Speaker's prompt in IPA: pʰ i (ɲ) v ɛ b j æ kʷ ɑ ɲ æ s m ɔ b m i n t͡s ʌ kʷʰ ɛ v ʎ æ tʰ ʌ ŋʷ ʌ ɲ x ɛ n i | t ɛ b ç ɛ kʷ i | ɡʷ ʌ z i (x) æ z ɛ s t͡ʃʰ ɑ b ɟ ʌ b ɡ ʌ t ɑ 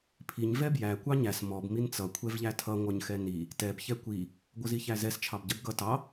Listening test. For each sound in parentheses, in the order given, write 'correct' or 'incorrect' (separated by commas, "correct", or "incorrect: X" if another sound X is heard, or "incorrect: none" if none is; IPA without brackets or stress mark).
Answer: correct, incorrect: ç